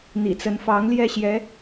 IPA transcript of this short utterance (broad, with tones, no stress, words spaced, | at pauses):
n̪ḭ˨˩t͡sə˧˥nfɑ˧˥ŋ ljɛ˥˩ɕjɛ˧˥